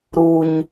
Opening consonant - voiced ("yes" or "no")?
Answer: yes